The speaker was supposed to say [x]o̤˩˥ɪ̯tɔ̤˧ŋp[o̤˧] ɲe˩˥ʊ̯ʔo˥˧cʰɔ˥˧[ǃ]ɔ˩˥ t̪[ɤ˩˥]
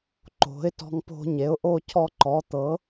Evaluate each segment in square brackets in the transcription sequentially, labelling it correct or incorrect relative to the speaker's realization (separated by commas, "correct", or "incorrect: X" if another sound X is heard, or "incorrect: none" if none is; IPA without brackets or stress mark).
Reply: incorrect: ǃ, correct, correct, correct